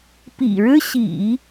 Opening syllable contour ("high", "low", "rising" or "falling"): low